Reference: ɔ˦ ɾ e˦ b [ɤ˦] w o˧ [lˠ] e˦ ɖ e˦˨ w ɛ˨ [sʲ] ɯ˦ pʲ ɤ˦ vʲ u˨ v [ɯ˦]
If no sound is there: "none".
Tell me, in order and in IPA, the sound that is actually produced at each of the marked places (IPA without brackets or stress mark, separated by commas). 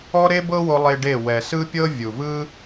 ɤ˦, lˠ, s, ɯ˦